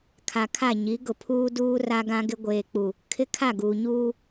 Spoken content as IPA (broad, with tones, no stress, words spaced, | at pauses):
kʰa˨kʰa˦˨ ɲi˨˦ɡʊ˨pʰuː˦duː˦ ra˦ɡã˦ɡɪ˦ ɡʷeː˨k͡pu˨ | kʰɪ˦kʰa˦˨ɡuː˨ ɲuː˦